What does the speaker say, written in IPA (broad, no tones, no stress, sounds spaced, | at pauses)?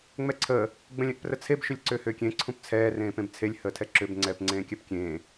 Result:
ŋ͡m ɛ ǀʰ əː | ɡ͡b ə̃ lʲ ɛ̃ ʔ p r ə t͡sʰ e b ʃ ʏ lʲ ǀ ʏː h ʏː kʲ ẽ ǀʰ ũ p t͡sʰ ɛː r ẽː p ẽ b t͡sʰ e lʲ h əː tʰ ɛ ǁ ʏ b ŋ͡ǀ ɛː p ŋ͡ǀ ẽː kʲ ɛ p kʲ ẽː